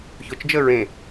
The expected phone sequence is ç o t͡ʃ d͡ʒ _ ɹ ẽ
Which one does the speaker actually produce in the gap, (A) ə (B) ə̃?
A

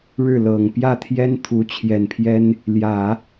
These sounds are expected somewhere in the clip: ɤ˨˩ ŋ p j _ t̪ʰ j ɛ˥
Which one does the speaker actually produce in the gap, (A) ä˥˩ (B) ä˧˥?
A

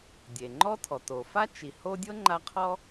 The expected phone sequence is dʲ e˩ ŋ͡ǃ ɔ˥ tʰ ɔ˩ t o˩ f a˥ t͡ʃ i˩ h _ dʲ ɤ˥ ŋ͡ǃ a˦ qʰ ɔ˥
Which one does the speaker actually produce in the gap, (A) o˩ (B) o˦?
B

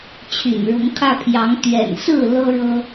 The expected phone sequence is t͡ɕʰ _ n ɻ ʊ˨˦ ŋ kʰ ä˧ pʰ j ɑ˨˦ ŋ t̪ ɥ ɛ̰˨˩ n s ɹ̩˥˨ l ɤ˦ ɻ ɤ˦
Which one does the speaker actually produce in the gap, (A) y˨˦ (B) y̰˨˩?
B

